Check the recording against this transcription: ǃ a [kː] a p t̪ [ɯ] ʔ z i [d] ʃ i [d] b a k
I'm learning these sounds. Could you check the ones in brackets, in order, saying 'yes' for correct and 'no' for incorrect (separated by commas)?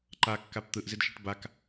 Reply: yes, yes, yes, no